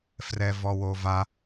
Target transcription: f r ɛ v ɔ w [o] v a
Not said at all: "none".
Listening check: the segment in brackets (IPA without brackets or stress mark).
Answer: o